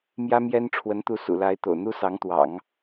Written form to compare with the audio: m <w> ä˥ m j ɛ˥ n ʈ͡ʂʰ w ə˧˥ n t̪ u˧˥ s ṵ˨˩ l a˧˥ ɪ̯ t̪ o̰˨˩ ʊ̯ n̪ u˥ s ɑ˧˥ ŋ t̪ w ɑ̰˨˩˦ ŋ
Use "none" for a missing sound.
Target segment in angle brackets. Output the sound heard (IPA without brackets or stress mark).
j